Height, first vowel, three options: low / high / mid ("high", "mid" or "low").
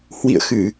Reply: high